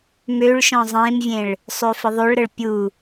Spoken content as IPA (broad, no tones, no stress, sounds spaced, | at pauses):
m ø ɭ ʃ ɔ̃ zˤ ẽ m vʲ ẽ ɭ | sˤ ø f ə ðˤ o ɭ ɾ ə ɭ pʲ u